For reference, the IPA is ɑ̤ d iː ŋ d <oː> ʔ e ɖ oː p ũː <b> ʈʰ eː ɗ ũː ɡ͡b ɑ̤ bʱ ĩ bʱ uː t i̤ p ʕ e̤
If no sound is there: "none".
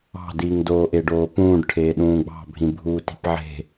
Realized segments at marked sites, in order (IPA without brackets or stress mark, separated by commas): oː, ɖ